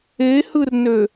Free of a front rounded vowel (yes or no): no